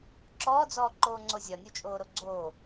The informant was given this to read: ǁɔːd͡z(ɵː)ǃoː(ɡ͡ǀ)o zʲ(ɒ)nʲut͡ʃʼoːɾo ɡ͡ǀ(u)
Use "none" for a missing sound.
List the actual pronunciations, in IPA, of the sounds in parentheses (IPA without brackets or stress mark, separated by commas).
ɔː, ŋ͡ǀ, ɒ, o